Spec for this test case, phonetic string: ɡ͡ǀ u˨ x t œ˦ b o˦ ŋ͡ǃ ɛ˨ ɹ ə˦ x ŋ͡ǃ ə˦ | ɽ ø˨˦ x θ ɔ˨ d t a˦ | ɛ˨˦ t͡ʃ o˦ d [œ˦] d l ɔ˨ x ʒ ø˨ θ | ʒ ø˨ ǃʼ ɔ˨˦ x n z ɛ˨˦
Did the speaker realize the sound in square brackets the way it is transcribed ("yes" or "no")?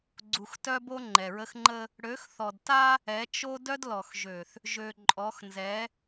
yes